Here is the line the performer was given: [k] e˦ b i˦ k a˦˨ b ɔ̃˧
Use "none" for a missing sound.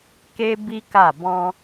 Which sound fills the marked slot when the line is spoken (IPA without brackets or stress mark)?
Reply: k